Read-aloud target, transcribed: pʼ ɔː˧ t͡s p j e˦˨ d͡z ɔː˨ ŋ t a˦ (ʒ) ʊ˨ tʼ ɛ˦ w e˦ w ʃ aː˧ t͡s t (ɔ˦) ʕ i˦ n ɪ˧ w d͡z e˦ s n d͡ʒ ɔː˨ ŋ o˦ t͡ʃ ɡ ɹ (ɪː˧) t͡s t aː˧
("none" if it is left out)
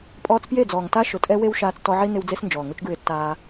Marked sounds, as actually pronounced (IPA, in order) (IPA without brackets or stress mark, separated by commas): ʃ, ɔ˧, ɪː˧